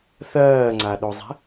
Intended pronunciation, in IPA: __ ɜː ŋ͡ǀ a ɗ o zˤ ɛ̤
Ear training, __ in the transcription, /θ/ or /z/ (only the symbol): θ